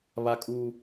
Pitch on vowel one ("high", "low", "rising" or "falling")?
high